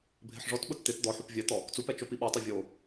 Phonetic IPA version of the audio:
bʱ ɪ ħ ʐ ɔ t ɓ ʊ t t̪ ɪ t d̪ ɔ ħ u p vʲ ɛ t̪ ɔ | t͡s u p ɛ t͡ʃ o p i ɓ ɔ tˤ ɛ vʲ o

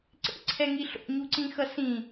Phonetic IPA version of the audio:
ǀ ḛ ǀʰ ɛ ŋ i ɬ o̰ ɲ u ǀ ĩ x ʌ s ĩ

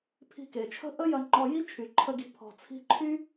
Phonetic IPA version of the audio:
pʰ i̤˧ k e˩ t͡ʃʰ ə̤˥ ʔ ə˥ j ɐ˧ ŋ͡ǃ ɔ˧ j i˥ t͡ʃʰ y˩ ǃʰ ə˧ ɡ i̤˧ pʰ ɔ̤˩ t͡sʰ i̤˧ ǃʰ y˥

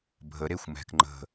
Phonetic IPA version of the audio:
bʱ ə ɾ e xʷ m ɛ̤ k ŋ͡ǃ ə̤

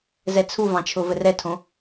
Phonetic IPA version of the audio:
z ɛ t͡sʰ u v ɑ̃ t͡ʃʰ ʊ v ɘ r ɛ tʰ õ

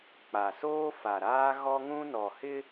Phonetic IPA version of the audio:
k͡p a˨ s oː˦ f a˨ ɾ aː˦ ɣ ɔ˦ ŋ ũ˦ n ɔ˨ h ɪ˦

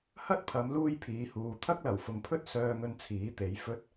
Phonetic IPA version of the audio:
h ɐ˥ t̚ pʰ ɐ˨˧ m l uː˧ j pʰ iː˨˧ h uː˨ t̪ʰ ɐ˥ k̚ l ɐ˨˩ w f ʊ˨ ŋ pʰ ɵ˥ t̚ s œː˧ ŋ ɵ˧ n t͡sʰ iː˨˥ t̪ e˨˧ j f ɵ˧ t̚

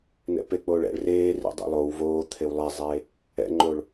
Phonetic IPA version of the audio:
n ɛ̰ p e k͡p o ɭ ɛ̰ ɭ r eː r ḛ dˤ ḛ lˠ o w v oː t̪ʰ e w lˠ e zˤ eː | ɛ̰ ŋ͡ǃ o ɭ

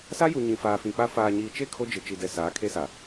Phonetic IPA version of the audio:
s a˦ j u˨ ɲ ĩ˨ f aː˨ f ĩ˨ k͡p a˦ f aː˨ ɲ iː˨ t͡ʃ e˦˨ kʰ o˦ d͡ʒ ɪ˨ t͡ʃ i˨ d ɛ˨ s aː˨˦ kʰ e˦ s a˨

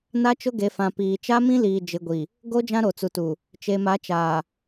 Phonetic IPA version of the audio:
n a˦ t͡ʃ ʊ˦ ɡ e˨˦ f ã˨ p iː˨ t͡ʃ a˦ m ĩ˦ l iː˨ d͡ʒ ɪ˨ ɡʷ i˨ | ɡ o˦ d͡ʒ ã˦ ɾ o˨ t͡s u˨ t u˨ | t͡ʃ e˨ m a˨˦ t͡ʃ aː˨

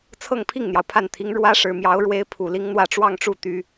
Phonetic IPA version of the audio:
t͡sʰ ɤ˥˧ ŋ pʰ i˥˩ ŋ n̪ j ɑ˩ ʊ̯ pʰ a˥˩ n t̪ʰ i˧˥ ŋ ɻ w ä˥ ʂ ɻ̩˨˩ m j ɑ˧˥ ʊ̯ ɻ w e˥ ɪ̯ pʰ u˨˩ l i˥ ŋ n̪ w ä˥˧ ʈ͡ʂ w ɑ˥˧ ŋ ʈ͡ʂ u˥˩ t̪ y˨˩˦

